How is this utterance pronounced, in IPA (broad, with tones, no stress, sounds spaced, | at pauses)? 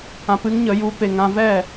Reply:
ã˧ p ɨ˦ ŋ ɲ ə˨˦ j u˨˦ p e˨ ŋ ã˧ v ɛ˦˨